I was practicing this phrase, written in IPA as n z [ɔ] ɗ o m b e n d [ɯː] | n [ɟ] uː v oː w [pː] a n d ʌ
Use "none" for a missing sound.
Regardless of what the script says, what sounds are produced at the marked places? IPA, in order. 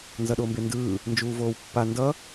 ʌ, ɯː, d͡ʒ, pː

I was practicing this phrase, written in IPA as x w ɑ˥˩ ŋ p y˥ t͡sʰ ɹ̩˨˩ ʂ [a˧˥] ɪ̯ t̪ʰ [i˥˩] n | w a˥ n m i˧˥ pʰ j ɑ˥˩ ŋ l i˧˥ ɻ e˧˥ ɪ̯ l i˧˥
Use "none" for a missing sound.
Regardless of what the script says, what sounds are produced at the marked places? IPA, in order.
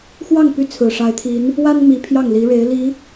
a˧˥, i˧˥

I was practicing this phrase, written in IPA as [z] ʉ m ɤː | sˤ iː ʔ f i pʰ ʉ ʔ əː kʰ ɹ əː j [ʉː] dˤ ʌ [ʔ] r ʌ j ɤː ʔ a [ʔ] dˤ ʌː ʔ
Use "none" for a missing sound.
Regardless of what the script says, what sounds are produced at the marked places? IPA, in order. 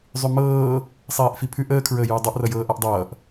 zˤ, ʉː, ʔ, ʔ

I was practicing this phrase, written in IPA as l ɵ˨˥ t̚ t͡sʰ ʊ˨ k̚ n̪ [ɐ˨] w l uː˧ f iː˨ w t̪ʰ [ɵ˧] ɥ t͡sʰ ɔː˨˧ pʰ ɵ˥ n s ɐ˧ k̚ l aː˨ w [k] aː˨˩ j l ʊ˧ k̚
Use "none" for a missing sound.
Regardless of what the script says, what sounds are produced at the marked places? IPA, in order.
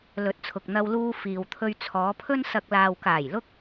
ɐ˧, ɵ˧, k

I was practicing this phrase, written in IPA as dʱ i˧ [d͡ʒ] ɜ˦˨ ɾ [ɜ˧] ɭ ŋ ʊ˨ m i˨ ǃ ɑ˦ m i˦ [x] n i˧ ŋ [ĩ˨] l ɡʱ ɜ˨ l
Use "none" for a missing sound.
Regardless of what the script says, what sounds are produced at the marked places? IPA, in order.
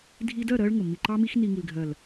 d, ɜ˧, x, i˨

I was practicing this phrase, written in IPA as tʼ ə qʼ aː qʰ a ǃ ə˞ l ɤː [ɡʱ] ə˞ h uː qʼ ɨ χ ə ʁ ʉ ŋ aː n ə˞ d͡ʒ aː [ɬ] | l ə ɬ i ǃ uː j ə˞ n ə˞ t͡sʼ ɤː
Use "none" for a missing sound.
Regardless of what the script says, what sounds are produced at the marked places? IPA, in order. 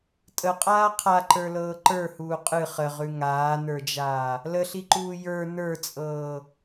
ǃ, none

